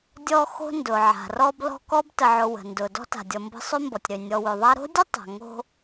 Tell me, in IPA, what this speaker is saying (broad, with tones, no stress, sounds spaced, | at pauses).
dʲ ɔ˦ x o̤˦ n d ʊ˩ ʕ a̤˩ r ɔ˦ b l ɔ̤˦ k ɔ˥ b t ə˨ ʕ ʊ˨ w ə̤˩ n d ʊ˩ d ɔ̤˥ t a̤˩ dʲ ɔ˨ m b ə̤˦ sˤ ø˥ m b ɔ˩ tʲ ɾ ø˩ nʲ ɔ˨ w ø˩ ðˤ a˥ ɾ o̤˥ dʲ ə˥ tˤ a̤˩ ŋ o̤˦